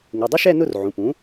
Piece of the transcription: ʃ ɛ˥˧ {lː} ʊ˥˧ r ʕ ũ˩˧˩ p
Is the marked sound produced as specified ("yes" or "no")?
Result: no